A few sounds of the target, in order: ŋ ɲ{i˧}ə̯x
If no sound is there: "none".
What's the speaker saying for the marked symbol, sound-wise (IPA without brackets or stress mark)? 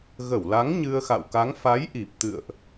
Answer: ɨ˧